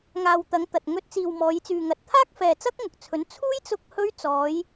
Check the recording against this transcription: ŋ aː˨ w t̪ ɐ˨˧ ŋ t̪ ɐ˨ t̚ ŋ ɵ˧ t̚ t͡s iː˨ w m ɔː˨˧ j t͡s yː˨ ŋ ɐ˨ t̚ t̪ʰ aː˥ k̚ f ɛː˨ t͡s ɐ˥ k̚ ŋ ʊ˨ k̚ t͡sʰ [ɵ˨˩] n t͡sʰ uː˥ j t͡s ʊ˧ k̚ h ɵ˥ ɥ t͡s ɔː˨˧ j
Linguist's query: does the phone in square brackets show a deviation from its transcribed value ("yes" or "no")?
yes